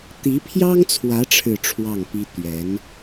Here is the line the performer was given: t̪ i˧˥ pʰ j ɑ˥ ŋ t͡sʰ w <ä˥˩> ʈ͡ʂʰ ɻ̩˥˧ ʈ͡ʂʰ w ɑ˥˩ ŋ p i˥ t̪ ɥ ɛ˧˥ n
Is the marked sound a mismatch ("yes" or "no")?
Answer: yes